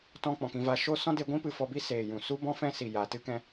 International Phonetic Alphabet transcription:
tɔ̃˧ k͡pɔ̃˨kĩ˧va˧ ʃo˦ sɔ̃˦de˧ɡʷĩ˦ pɨ˧fɔ˧bi˦ seː˨jũ˨su˦ bɔ̃˦fɛ̃˦si˨ ja˨tɨ˦kɛ̃˧

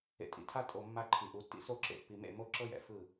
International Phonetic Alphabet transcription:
ḛ˨tʼḭ˨tʰa˦tʼo˨ mːa˦ǃʰi˨ʔu˨˦ tːḭ˦so˦˨ ǁḛ˨pːi˨mḛ˦˨ mo˦ǁɤ˦jɛ̰˨ fɯ˦˨

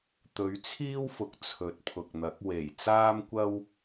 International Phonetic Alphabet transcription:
t̪ɵ˨˥ɥt͡sʰiː˥wfʊ˨k̚ t͡sʰɵ˨˥t̚pʰʊ˨k̚n̪ɐ˨˥k̚ we˨˩j t͡saː˥mkʷɐ˥w

